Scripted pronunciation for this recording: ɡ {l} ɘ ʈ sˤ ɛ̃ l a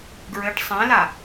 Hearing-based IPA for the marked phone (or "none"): ɹ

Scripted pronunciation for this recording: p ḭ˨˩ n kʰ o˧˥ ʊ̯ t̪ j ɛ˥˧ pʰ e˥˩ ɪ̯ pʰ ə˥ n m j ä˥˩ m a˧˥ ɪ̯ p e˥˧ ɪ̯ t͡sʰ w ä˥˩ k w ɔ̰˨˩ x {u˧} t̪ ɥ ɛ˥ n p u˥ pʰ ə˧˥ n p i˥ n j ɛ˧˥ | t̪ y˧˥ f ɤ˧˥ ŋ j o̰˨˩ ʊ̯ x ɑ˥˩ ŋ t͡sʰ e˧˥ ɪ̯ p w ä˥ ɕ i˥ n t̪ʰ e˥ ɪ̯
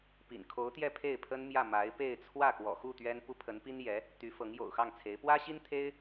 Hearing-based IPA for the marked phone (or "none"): u˥˩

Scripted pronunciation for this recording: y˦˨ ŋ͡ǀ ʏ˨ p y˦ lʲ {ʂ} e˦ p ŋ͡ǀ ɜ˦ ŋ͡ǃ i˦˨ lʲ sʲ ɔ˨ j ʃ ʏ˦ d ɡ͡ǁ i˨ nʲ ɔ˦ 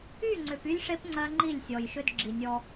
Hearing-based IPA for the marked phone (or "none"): ʂ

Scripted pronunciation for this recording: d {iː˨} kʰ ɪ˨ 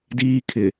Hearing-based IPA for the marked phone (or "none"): iː˦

